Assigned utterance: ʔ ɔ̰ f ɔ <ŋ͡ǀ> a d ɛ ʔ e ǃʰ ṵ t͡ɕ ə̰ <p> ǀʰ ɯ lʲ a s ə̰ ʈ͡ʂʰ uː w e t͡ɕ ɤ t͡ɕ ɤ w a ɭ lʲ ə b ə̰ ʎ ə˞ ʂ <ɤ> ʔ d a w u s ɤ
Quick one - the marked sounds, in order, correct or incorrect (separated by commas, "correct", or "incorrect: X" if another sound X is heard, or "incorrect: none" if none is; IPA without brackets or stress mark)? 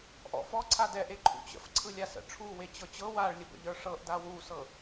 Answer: incorrect: ǀʰ, incorrect: f, correct